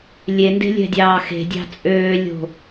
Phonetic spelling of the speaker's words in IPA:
lʲ e n d e̤ lʲ ɛ̤ dʲ ɑː x e̤ dʲ ɑ̤ t͡sʼ øː lʲ o̤

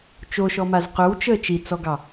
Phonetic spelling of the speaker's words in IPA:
t͡ʃ o ʃ ɔ m a z q ɵ w t͡ʃ əː t͡ʃ i t͡s ɔ ɡ ɑ

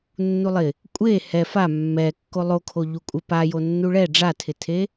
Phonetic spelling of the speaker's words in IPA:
nː u lˠ ɪ | kʷʼ e h ɛ f a mː ɛ kː o lˠ o kʰ o ʎ u kʷʼ ɪ p a j o nː u ɭ ɛ ɖ͡ʐ a tʰ ɪ tʰ e

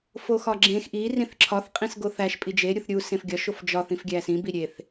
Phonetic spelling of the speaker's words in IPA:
f o x ɒ ɡ͡ǁ ẽ x ʔ i r ĩ θ ǁʰ ɒ θ qʼ ĩ s ɡ o θ æ ʃ pʼ i d͡ʒ e ɾʲ u θ ɾʲ u s ẽ f ɡʲ ɒ ʃ o f d͡ʒ ɒ θ ĩ f ɡʲ æ s ĩ b i ɾʲ e θ

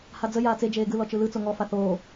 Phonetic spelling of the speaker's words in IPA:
h a d͡z ə j aː t͡s e d͡ʒ eː ɡ ɯ l ɔ t͡ʃ ɯ l ɯ t͡s o ŋ ɔ f a θ oː

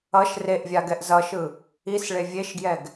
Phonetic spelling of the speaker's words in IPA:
ʌ ʃ r e ʔ vʲ a ɡ ɛ ʔ z ʌ ʃ ɯ | i s ɭ e vʲ e ʃ ɡ j ɛ ɡ

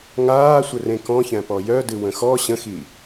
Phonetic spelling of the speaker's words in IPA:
ŋ aː sʷ ə r ẽ k ɔ̃ ç æ̃ p ɔ j œ d ɨ w ə̃ x ɔ ɕ ə̃ x i

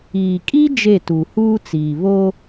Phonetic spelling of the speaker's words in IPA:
iː˨ kʼ i˦ d͡ʒ e˦˨ t u˨ h uː˦ t͡s iː˨ β o˦

